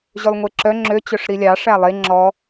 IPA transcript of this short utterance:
ʑølˠŋʷeǁœ ŋ͡ǁø t͡ɕœʂɾilʲɑ ʂælˠe ŋ͡ǁɔ

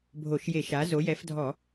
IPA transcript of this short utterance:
bʱo˧˩˧ʃje˧˩˧ʃa˩˥ zo˩˥jɛ˩˥fdʱɔ˧˩˧

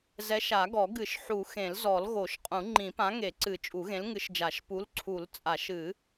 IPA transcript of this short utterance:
zɛ˨˥ʃ a˨˩˦ɡɔ˨˩˦ ɡɨ˨˩˦ʃ ħu˨˩˦ xẽ˨˩˦lzɔ˨˩˦l ɣo˨˩˦ʃqʼũ˨˩˦ ŋ͡ǃĩ˨˩˦pã˨˥ŋe˨˩˦ǀɨ˨˩˦ t͡ʃʼu˨˩˦ɣẽ˨˥lŋɨ˨˥ʃd͡ʒa˨˩˦ʃ pu˨˥lǀʰu˨˩˦lt͡sʼa˨˩˦ʃ ɨ˨˩˦

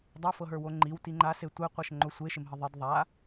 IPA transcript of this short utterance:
dˤofɤɦə˞wo ŋ͡ǃiwti ŋ͡ǃase tʷeqʷɤʃŋ͡ǃo sʷeʃɪmɦə ðˤɪd ðˤa

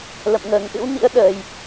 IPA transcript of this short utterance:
lə̰˧˨mŋəː˨˩ŋʔɨ̰˧˥wnḭ˧˥ə̯ ɗəː˨˩j

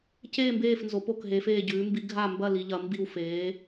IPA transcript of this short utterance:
ceː˥˧mbeː˥˧f nzo˧˥po˥˧kɦeː˧˥f eː˥˧ɟʉː˧˥ mbi˧˥ ɡʱa˥˧ mbɐ˥˧ li˧˥ʎɐ˧˥ mbi˥˧wfeː˧˥

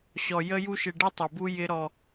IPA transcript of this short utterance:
ɕɔ˨jə˦ju˦ʃ ɪ˨ ɖɪ˦tˤɪ˨bu˦ jɪ˦ɾɔ˦

